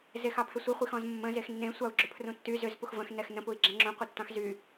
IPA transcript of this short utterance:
z e x ɑ pʰ ʏ sʷ i χʷ i x ɔ̃ z mː ə̃ z e x nː ẽ sʷ ɑ u̯ ɡ͡ǁ ʏ pʰ r ũ tː y z ʏ z p u x v ə̃ x n ɛ x n ə̃ p u i̯ ɡ͡ǁ ɛ̃ ŋ͡ǁ ũ qʷ i tː ɑ̃ x z y

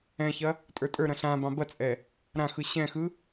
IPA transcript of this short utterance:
ɛ̃ ç ɐ | tʼ ə˞ tʼ ə˞ ɾ ɐ̃ ɬ ã b ɑ̃ b ɐ t͡sʼ ɛ | ɾ ã x ɯ ɕ ɛ̃ x ɯ

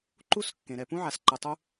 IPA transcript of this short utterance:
ǃ u˥ s kː ẽ˩ ɾ ɛ˩ p ũ˥ ʕ a˩ s ǃ ɯ˩ tˤ u˦

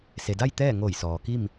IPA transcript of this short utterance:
s e˩ d a˥˨ j t̪ ɛː˥˨ ŋ oː˧˩ j s ɔː˩ k i˥˨ m

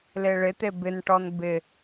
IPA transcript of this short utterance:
l e ɭ ɪ t̪ e b ɪ n ʈ ɔ n b ɪ

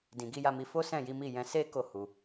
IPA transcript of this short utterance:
d ĩ˨ ɡ i˨˦ j a˧ m i˧ f o˦ s ɛ̃˦˨ j i˨˦ m i˦˨ j ɛ̃˧ s e˦ k o˦˨ h u˨

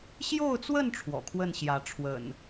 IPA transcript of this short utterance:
ɕ j o˥˨ ʊ̯ t͡s w ə˥˨ n ʈ͡ʂʰ w ɔ̰˨˩ kʰ w ə˥˨ n ɕ j ä˨˦ ʈ͡ʂʰ w ə̰˨˩ n

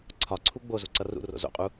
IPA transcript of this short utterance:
ǀʰ ɒ ǀʰ u ɡ͡b o z u ǀ ʌ r ṵ r o̰ z o̰ qʼ u

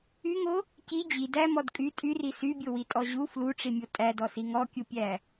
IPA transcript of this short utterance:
y ŋ o | c i d͡ʑ i d æ m ɔ d kʼ y tʼ y r i s y bʲ o w i tʼ ɔ ʑ u f l u ʈ͡ʂ i mʲ o tʼ æ d ɔ s i ŋ ɔ kʲ u pʲ æ

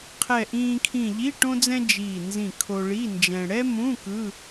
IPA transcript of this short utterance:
qʰ ɛ˧˩ ʔ ĩː˧ kʰ ĩ˧˩ ʎ i˧˥˧ ʈ õ˥ d͡z ɛ̃˥ d͡ʒ iː˧˩ n z ĩ˧˩ kʰ o˧ ɭ i˧˥˧ n d͡ʒ ɛ̃˧ ɽ ɛ˥ m ũ˧˥˧ k ɯ˧˥˧

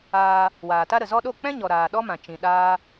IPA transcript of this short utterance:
aː˧ | w aː˨ t a˦ ɾ ə˨ z ɔ˧ ɗ o˦˨ k͡p ɛ̃˦ ɲ ɔ˨ ɾ aː˨ ɗ ɔ˦ m ã˨ t͡ʃ ĩ˨ ɗ aː˦

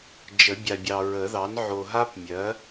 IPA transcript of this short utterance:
d͡ʒ ə˨˩˦ bʲ a˨ bʲ ɑ˨ ɹ ə˨˩˦ ð ɑ˩˥ n ʕ o˨ ɦ a˥ p mʲ ɜ˩˥

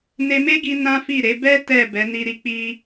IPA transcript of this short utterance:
n e˧ m e˦ ɡ i˧ n ã˦ f i˦˨ ɾ e˨˦ b ɛ˦ t ɛ˦˨ b ɛ˨˦ n i˧ ɾ i˧ k͡p i˧

